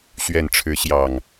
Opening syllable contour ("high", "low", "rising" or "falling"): low